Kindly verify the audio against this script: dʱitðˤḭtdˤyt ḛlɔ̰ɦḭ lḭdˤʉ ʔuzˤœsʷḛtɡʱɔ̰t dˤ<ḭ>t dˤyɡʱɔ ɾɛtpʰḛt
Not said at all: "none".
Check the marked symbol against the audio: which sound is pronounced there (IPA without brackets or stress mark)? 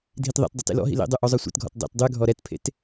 ḛ